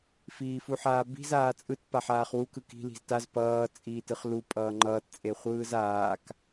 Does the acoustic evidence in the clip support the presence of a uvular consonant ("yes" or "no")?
yes